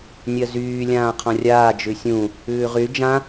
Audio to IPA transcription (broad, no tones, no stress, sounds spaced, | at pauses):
nʲ ɜ z yː lʲ ãː qʰ ɔ̃ rʲ aː d͡ʒ ʉ sʲ ũ | ʉː ʁ y d͡ʒ ã